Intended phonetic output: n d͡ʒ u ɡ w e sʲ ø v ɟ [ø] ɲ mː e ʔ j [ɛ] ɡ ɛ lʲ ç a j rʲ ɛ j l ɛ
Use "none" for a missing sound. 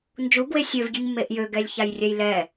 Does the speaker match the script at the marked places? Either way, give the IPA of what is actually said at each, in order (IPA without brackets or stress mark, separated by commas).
y, ø